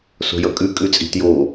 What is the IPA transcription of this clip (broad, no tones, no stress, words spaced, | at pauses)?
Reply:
so̤jʌkʼʉ kʼʉt͡sʼi̤tjo